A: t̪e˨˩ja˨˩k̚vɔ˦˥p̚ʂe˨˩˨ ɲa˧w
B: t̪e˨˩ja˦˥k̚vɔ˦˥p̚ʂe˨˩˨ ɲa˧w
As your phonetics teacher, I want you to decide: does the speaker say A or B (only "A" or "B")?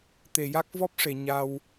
B